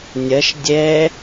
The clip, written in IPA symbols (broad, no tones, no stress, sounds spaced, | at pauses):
nʲ ɐ ʃ dʲ ɛ